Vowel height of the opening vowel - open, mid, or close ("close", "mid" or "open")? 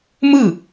close